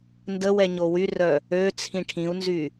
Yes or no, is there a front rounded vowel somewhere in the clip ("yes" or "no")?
yes